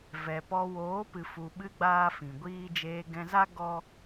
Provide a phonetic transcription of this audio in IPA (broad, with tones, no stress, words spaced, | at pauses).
vɛ˨pɔ˧ woː˨˦ pɨ˨fu˨ɓɨ˧ ɡ͡baː˦fĩ˨ɡʷiː˦ d͡ʒeː˧ɡɛ̃˧za˦ ɡɔ˦